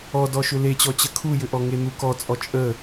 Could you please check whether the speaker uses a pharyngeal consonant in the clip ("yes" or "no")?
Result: no